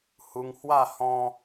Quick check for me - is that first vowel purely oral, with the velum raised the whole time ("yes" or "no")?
yes